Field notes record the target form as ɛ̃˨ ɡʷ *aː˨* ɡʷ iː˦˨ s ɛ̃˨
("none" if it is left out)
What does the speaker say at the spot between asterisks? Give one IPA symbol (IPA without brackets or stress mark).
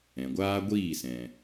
aː˦